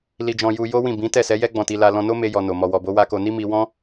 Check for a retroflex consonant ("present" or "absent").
absent